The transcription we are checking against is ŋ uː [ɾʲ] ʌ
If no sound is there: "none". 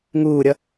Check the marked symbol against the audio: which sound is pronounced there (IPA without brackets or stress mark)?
ɾʲ